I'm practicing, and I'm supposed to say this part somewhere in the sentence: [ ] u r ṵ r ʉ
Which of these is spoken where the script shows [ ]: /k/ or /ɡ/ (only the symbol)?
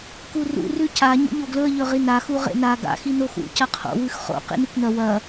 k